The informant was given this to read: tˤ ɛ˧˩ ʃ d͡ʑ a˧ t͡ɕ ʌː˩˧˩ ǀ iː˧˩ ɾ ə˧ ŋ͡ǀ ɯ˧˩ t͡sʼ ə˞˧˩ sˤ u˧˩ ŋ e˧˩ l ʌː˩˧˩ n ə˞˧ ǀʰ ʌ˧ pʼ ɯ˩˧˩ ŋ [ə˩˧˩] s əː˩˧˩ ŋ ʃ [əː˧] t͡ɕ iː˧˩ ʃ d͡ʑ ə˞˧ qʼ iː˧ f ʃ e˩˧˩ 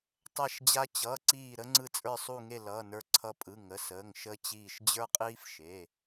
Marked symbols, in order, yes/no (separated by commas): yes, yes